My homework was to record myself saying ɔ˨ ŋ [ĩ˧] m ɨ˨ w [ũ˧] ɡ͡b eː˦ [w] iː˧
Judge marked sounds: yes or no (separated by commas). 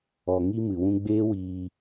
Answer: no, yes, yes